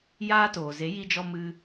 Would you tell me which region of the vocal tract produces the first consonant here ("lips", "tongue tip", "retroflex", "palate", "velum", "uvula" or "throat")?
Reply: palate